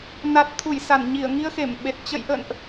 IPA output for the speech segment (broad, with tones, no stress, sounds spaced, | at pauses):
n a˨˩ t̚ t̪ʰ u˧˩ j s a˧˩ n ɲ i˧˩ ə̯ ŋ i˧ ə̯ x e˧˩ m ɓ e˨˩ t̚ t͡ɕ ə̰˧˨ j ʔ ə̰˧˨ n ʔ